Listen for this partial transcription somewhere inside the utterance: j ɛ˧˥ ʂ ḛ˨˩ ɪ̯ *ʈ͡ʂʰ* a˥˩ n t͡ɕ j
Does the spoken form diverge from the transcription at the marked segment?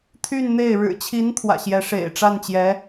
yes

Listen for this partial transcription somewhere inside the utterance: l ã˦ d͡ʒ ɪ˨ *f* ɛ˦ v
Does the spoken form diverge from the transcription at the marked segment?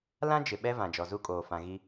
yes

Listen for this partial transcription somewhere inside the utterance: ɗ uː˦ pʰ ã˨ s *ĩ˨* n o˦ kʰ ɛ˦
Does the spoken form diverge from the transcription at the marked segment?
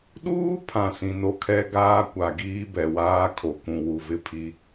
no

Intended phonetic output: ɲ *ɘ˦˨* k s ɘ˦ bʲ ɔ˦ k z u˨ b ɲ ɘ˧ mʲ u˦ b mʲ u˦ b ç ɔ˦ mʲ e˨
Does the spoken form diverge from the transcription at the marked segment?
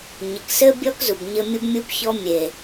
yes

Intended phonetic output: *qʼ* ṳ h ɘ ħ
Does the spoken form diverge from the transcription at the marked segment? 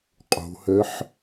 no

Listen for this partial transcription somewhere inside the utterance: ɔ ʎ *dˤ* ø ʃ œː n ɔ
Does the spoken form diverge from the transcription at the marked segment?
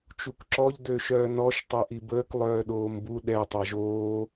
yes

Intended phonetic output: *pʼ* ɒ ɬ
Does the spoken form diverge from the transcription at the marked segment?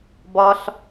yes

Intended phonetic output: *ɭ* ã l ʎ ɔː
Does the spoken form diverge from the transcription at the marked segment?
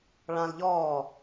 no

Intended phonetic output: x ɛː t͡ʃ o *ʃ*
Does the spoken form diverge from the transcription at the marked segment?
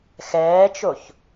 yes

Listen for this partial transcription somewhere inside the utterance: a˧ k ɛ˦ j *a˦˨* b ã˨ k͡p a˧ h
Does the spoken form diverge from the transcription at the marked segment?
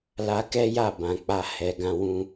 no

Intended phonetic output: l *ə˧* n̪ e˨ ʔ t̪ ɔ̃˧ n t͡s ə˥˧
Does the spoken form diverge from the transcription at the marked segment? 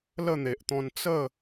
yes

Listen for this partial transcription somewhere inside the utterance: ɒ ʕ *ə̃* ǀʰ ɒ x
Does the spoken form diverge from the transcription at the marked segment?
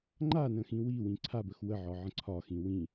no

